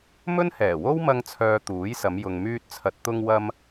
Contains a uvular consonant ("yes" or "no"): no